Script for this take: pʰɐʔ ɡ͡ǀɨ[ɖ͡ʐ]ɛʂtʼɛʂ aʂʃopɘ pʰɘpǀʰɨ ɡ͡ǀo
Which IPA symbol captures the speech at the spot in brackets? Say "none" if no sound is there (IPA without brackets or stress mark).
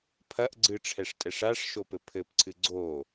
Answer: ʈ͡ʂʰ